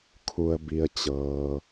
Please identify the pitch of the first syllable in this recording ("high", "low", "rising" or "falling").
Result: low